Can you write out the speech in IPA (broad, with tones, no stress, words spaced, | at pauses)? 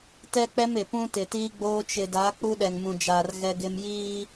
tɛ˦k͡pɛ˦mɪ˨ pũ˦tɪ˨tiː˦ɡ͡boː˦ t͡ʃɪ˨da˨˦ k͡pu˦ɗɛ˨ŋmũ˨d͡ʒaː˨r ɣɛ˦ɡɪ˦m jiː˦